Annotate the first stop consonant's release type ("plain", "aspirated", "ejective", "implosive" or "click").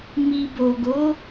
plain